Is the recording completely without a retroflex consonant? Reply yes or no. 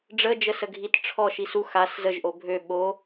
no